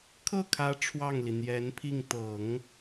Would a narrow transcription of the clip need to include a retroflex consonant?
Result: yes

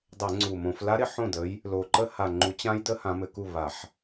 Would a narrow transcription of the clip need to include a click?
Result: yes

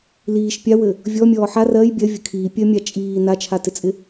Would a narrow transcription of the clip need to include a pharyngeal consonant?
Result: yes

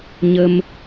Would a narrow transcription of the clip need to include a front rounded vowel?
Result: no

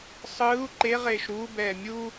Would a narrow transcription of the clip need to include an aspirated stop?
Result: no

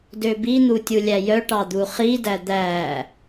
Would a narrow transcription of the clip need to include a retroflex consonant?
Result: yes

